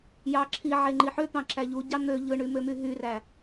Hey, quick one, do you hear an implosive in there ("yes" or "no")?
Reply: no